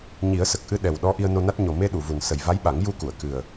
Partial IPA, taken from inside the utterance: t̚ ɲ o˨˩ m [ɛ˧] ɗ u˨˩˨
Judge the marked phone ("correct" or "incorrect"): incorrect